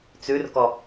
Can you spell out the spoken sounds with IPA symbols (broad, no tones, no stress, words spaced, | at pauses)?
t͡sʉrkɔ